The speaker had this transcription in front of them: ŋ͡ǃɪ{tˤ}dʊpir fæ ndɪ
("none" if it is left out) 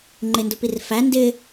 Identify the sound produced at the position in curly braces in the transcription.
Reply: n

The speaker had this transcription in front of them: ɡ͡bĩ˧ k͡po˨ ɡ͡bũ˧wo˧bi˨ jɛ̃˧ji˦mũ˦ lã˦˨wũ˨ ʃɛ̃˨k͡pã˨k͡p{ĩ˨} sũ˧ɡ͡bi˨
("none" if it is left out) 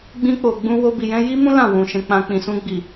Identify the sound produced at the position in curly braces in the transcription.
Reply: ĩ˨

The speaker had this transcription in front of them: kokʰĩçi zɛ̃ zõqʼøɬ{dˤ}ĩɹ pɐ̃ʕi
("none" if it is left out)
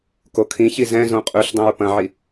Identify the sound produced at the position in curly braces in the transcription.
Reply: dˤ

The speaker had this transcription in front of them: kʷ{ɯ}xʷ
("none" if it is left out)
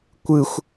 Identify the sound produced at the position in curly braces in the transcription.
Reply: ɯ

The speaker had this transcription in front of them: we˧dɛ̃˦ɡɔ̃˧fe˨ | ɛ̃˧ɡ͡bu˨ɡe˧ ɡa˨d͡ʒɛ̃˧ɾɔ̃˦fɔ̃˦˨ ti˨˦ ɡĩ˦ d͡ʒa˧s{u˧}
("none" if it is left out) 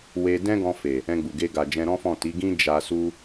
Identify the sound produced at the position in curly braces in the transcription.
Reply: u˦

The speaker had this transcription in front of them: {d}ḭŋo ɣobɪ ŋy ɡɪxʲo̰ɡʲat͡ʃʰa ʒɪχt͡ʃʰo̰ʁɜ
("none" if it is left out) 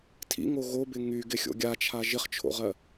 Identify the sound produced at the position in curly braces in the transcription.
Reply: tʰ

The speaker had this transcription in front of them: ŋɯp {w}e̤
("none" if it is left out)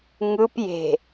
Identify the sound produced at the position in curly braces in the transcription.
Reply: j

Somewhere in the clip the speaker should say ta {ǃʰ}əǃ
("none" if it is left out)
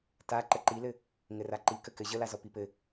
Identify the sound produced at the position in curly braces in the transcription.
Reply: ǃ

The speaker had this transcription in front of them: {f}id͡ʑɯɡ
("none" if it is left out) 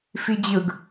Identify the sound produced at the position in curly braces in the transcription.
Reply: f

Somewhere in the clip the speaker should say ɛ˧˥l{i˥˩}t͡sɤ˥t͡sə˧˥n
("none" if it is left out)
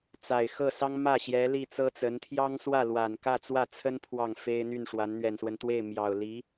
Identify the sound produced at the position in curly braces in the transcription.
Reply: i˥˩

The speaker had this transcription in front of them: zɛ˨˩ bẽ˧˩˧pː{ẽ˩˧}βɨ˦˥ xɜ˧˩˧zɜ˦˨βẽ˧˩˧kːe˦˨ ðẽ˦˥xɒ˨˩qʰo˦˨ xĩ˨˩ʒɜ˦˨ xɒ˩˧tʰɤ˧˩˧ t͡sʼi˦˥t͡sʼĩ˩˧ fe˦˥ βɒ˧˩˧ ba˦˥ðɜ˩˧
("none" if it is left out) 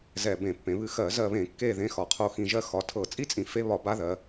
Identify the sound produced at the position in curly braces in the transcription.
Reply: ẽ˩˧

